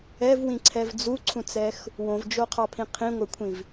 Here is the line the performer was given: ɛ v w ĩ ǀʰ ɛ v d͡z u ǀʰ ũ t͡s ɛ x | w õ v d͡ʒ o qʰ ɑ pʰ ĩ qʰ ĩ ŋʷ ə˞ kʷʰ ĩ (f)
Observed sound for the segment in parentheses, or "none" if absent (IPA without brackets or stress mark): v